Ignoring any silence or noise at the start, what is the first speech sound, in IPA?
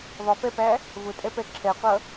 ðˤ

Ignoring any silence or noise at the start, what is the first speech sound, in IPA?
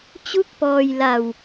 t͡ɕ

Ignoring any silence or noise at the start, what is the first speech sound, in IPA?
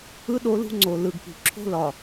ɯ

